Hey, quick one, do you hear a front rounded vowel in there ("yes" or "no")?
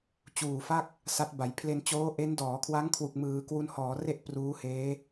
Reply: no